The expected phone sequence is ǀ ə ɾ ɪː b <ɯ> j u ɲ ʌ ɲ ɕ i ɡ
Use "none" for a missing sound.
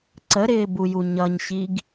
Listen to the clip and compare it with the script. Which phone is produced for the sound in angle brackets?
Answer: u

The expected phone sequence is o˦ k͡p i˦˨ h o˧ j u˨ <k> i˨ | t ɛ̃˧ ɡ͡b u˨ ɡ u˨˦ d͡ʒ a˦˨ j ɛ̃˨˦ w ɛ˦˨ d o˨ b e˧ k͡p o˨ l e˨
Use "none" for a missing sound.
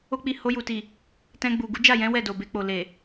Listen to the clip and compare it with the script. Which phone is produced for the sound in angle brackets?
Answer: t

